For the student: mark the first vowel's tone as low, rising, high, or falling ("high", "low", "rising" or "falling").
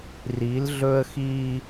rising